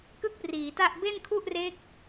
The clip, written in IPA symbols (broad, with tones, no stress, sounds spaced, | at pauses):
k ɯ˥˩ k̚ p r iː˩˦ t a˥˩ ʔ b e˥˩ n kʰ u˥˩ ʔ r e˦˥ k̚